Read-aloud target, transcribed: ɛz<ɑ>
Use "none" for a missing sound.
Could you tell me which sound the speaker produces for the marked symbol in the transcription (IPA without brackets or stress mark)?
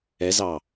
ɑ